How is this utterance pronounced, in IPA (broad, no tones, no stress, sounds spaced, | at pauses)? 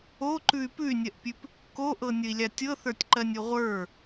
o ǃ ʉ y̯ p ʉ y̯ nʲ ɜ ʔ pʲ ʉ p | k o ʔ ɤ nʲ ə i̯ lʲ a tʲ ɤ θ ə˞ tʲ ǃ ɜ nʲ o ʁʷ ə˞